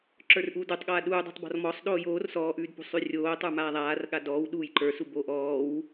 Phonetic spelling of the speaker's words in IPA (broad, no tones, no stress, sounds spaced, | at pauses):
ǁ ə˞ r ʔ uː d u tˤ ɠ aː ɗ uː dˤ o̤ tˤ b ɔ̤ r m ɔ sˤ ɗ oː j oː r s ɔː ʔ ʉː d p ṳ sˤ ʉ rʲ oː tˤ ə˞ m aː ðˤ aː r ɠ a d ɔː w ɗ uː j ǃ ə˞ s u b o ʔ ɔː w